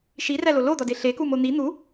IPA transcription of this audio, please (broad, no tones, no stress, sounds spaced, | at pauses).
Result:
ʃ i r æ l o l o d̪ ɒ d e ɬ e k u m o n̪ i n̪ u